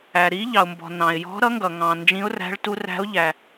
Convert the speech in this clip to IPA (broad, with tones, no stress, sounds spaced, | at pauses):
æ˩ ɾ i˧˥ ʎ ɑ˩ ʊ̯ m b ɔ̤˩ n ɑ̃˩ ɪ̯ j ɔ̤˧˥ ɾ ʌ˧˥ ŋ ɡ ʌ˩ ŋ ɑ̃˩ n d͡ʒ ĩ˧˥ ʊ̯ r æ̤˧˥ ɭ t u˧˥ r æ̤˧˥ ʊ̯ ʎ æ˩